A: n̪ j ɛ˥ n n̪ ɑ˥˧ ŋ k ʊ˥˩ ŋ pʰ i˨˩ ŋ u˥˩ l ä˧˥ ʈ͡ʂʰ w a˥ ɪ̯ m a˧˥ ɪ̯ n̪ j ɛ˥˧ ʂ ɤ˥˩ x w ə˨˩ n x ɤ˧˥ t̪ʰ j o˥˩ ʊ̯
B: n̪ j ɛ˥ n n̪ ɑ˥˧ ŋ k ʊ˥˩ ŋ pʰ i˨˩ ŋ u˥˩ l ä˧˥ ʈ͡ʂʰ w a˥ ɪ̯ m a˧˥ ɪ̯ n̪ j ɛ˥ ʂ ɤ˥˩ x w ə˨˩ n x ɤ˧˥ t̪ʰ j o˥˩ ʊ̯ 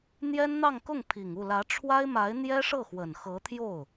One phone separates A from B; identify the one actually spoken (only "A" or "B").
B